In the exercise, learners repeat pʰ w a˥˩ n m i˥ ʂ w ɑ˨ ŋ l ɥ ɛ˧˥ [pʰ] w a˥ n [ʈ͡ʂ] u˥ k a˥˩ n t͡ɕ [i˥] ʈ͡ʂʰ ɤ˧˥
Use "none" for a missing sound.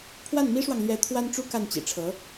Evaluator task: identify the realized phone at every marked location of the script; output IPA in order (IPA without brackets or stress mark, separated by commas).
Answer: t̪ʰ, ʈ͡ʂ, ḭ˨˩